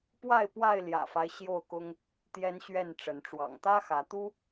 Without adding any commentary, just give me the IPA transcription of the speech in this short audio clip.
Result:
pwa˥˨ɪ̯ pwa˥˨ɪ̯ljä̰˨˩fa˦ɪ̯ ɕjo˥˨ʊ̯kʊ˦ŋ | t̪jɛ˦nɕɥɛ˥˨n ʈ͡ʂə˨˦n ʈ͡ʂwɑ̰˨˩ŋt̪ä˦xä˨˦t̪u˦

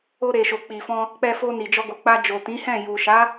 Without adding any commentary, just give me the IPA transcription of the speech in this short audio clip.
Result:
o˧ɾe˨ʃo˨ k͡pi˨fɔ̃˧ | k͡pɛ˧fo˧ni˨ d͡ʒɔ˧ɡo˨k͡pa˧ d͡ʒo˨tĩ˨˦hɛ̃˦˨ ju˨ʃa˨˦

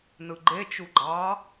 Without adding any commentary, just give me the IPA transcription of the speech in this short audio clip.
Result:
nɯɡ͡ǃet͡ʃu ɡ͡ǃɑ

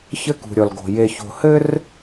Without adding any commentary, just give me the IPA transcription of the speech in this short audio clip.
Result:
çɘ˦kṳ˨ ɾʲɔ˨lɡo̤˨ je˨ço̤˨ hɘ˦r

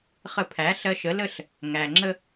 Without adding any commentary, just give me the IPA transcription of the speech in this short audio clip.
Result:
χə˧pʰæ˩˥ ɬɜ˧ʃə˩˥lə˥˩ɬ | ŋæ˩ŋ͡ǁə˧

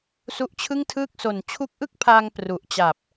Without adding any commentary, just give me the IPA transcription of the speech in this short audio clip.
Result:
su˦˥ʔt͡ɕʰɯ˥˩ŋtʰɯː˥˩k̚ so˨˩n t͡ɕʰu˦˥k̚ʔɯ˥˩k̚pʰaː˧ŋ pru˨˩ʔt͡ɕa˨˩p̚

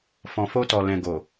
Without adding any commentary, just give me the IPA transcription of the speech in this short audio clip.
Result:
fɔ̃˨ fo˧tɔ˨ lɛ̃˨ɡo˨

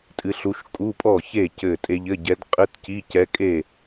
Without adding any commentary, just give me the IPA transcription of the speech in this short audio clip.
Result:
tʼɨ˧˥ɬu˧˥ʃ kʼu˧˥˧pʼɔ˥˩çe˥˩ cɘ˥˩tʼe˥ʎ ɘ˧˥˧ɟɛ˧˥d qʼɘ˧˥˧t ci˧˥˧cɛ˧˥kʼe˥˩

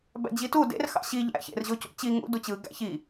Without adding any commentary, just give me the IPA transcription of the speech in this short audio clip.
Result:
bæ̰d͡ʑitu dḛr xɑ̰ɕi ʎæ̰ çḛr ʑocṵt͡ɕi ŋṵ dut͡ɕɯ ɡæ̰çi

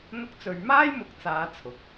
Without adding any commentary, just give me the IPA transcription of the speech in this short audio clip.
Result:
n̪ʊ˥k̚t͡sɵ˧ɥ maː˥jmʊ˨˥k̚ t͡saː˨˧ t͡sʰʊ˨˥k̚

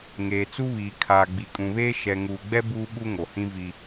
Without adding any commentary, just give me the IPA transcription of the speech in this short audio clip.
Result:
ŋeː˨t͡su˦βiː˨ kʰaː˨ɡ͡bi˨kʼũ˨βeː˦ ʃɛ˨ŋuː˨ɡ͡bɛ˦ buː˦ɓu˦ŋo˨hĩ˦ vi˦

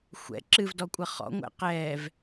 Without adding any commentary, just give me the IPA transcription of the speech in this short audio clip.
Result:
xʷɛ̰ ǁɨvdɔkʷʼʌ χɔ̰ŋʷɛ̰ qɛːv

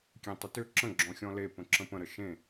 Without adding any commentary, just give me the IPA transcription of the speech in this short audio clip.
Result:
kʲẽtˤʏtʏ ǁə̃ ɡ͡ǁɔ̃xʲɔ̃le pə̃ǁə̃pə̃ ɾəʃẽ

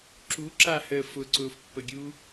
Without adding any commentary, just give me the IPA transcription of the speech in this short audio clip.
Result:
ǁuǁahəː fʊǀʊːfpːəɡʲuː

